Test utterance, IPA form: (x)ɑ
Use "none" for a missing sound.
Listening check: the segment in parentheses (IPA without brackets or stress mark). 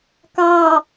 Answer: k